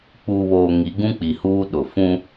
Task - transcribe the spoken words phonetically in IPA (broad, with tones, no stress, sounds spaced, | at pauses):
k͡p uː˨ β oː˨ ŋ i˨˦ ɡ ũ˦ k͡p i˨ h uː˦ ɗ ʊ˨ f ũ˦